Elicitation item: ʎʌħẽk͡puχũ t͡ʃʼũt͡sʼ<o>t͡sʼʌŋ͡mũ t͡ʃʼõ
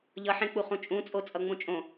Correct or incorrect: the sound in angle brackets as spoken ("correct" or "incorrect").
correct